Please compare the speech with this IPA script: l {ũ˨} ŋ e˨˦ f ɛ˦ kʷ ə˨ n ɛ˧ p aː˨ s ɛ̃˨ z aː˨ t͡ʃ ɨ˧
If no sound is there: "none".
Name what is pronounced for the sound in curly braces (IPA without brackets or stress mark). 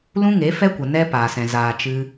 ũ˦